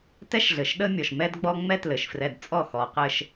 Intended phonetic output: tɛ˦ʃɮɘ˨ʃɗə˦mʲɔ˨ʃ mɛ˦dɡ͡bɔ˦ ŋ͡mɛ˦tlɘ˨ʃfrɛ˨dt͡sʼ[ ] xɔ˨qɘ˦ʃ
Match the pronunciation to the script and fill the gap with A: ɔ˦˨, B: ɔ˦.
A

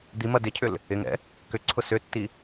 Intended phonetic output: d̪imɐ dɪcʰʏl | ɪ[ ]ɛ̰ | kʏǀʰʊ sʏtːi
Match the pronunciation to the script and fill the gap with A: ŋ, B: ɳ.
A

